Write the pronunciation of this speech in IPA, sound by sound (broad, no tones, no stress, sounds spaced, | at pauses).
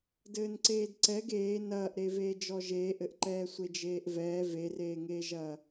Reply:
d ɘː n ǀ eː d ǀ ɛ ɡ eː n ɐː ʔ ɾ e v eː d͡ʒ ɔ ʒ eː ʔ ɘ ʔ ǃ ɛː sʷ e d͡ʒ eː ʔ v ɛː v e r eː ŋ eː ʒ ɐː